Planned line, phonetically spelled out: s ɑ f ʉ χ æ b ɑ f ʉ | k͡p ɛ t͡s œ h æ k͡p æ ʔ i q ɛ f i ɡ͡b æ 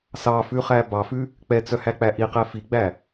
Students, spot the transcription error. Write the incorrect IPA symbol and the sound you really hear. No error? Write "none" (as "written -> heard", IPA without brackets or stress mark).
none